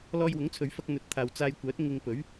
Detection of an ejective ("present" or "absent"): absent